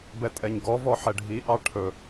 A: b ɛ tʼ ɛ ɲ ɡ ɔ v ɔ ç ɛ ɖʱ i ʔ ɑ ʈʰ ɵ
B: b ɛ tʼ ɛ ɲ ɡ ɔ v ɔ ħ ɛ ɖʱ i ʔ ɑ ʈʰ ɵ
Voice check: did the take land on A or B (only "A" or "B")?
B